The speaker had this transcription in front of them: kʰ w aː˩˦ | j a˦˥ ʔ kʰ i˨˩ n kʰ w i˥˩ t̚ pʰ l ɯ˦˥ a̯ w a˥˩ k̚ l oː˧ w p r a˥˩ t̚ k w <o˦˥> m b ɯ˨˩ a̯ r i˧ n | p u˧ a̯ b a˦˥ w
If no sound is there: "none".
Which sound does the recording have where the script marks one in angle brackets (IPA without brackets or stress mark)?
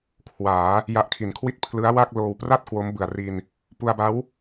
o˦˥